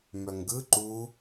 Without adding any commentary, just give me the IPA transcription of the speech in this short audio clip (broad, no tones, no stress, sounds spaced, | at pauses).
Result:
m œ ŋ ɡ ɯ ǃ u